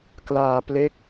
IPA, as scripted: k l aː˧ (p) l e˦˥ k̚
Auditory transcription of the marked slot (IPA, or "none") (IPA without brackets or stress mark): p